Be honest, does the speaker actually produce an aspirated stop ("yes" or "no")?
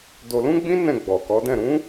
no